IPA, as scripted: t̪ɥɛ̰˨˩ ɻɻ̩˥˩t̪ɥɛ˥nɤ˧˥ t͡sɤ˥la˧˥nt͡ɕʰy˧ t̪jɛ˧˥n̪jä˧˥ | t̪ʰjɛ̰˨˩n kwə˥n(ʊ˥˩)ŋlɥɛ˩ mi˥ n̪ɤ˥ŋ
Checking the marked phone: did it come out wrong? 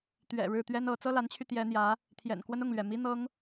no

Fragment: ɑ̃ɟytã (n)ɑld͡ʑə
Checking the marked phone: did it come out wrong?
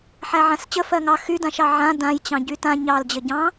yes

